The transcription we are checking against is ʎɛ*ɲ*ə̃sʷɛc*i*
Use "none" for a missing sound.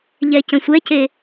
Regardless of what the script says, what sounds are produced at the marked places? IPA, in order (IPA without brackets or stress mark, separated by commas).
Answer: c, e